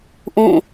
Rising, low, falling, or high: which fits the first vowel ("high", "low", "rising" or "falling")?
falling